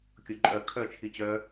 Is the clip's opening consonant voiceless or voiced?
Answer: voiceless